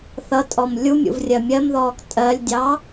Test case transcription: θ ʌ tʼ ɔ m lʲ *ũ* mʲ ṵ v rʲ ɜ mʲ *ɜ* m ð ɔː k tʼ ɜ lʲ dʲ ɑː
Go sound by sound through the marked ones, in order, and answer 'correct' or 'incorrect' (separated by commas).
incorrect, correct